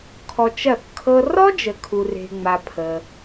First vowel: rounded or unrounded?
rounded